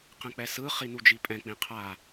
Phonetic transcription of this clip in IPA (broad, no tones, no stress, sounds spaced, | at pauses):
q ɛ̃ k͡p ɛ s ɯ χ i n u d͡ʒ i pʼ ɛ̃ k͡p ĩ qʰ a